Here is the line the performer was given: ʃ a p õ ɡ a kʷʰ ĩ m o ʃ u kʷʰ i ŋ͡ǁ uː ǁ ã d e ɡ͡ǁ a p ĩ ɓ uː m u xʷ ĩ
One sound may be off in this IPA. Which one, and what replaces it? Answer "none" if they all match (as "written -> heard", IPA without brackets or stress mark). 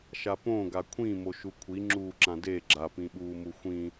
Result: none